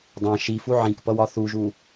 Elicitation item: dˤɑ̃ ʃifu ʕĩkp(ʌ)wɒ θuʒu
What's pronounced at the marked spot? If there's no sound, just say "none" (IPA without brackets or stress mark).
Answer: ʌ